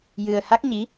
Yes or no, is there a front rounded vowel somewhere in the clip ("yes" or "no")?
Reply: no